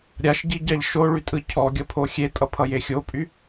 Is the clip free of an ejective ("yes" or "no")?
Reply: no